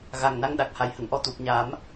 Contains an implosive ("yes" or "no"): yes